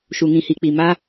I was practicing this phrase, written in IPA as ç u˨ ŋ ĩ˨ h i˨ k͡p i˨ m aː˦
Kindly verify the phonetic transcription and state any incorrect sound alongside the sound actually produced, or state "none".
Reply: ç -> ʃ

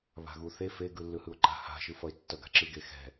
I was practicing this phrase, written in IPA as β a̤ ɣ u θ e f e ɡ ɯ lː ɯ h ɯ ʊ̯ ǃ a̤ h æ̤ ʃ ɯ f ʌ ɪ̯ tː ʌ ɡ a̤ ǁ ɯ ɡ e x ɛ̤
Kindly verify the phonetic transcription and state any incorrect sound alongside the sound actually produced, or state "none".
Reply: æ̤ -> a̤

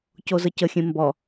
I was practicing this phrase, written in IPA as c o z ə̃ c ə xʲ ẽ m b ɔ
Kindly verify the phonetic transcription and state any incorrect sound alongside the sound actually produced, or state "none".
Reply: ə̃ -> ə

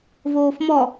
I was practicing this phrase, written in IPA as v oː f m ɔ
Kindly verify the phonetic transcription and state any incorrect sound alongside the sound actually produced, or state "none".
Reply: none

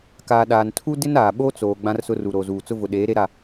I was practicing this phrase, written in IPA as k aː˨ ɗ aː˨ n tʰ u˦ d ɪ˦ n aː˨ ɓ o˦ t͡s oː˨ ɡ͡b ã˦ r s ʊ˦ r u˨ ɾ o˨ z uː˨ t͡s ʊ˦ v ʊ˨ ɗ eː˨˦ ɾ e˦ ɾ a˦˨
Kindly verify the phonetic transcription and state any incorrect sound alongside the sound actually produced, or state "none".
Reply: none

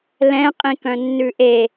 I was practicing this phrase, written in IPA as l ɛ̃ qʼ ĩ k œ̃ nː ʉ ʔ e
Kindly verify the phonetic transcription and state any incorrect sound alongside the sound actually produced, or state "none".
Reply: none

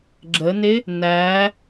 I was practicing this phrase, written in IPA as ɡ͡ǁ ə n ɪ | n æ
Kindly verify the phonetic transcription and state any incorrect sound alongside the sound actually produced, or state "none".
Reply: none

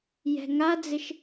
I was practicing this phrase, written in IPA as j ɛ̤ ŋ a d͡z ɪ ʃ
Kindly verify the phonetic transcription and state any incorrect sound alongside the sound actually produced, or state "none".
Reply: none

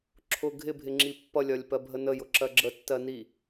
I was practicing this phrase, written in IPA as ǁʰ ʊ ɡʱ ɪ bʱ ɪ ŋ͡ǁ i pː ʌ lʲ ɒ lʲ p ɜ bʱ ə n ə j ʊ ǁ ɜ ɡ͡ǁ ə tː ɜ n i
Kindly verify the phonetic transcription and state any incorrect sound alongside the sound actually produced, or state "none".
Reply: none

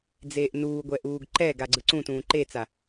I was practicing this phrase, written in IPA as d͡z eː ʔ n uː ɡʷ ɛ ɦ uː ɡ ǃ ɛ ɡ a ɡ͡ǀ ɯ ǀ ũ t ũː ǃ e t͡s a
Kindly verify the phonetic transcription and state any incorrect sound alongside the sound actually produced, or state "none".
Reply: ɦ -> ʔ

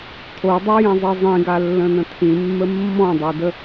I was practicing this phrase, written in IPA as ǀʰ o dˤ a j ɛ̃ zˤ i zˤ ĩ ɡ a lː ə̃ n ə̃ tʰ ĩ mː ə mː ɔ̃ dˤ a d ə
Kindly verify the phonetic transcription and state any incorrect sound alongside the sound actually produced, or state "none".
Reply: ǀʰ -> tʰ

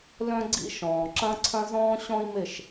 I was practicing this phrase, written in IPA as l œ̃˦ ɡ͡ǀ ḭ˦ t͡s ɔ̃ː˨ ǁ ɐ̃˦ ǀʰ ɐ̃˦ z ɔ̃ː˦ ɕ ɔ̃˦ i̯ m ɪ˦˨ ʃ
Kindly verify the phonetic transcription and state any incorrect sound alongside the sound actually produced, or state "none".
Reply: t͡s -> ʃ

